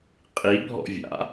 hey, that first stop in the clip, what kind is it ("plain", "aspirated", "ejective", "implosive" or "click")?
ejective